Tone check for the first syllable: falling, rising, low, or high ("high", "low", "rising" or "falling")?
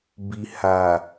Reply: low